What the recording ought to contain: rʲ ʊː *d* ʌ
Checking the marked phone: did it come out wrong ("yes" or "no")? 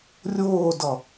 no